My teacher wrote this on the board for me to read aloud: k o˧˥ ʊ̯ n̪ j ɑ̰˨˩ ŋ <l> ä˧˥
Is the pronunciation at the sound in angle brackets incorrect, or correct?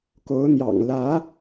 correct